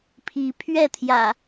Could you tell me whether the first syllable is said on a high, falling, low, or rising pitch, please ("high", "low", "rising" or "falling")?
rising